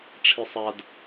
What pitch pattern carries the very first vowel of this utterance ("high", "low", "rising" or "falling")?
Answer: high